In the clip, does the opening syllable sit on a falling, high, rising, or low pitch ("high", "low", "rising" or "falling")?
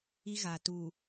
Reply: high